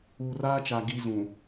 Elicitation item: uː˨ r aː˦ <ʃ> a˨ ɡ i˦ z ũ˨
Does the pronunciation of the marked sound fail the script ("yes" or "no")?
yes